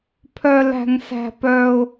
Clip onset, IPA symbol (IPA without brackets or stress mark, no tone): pʰ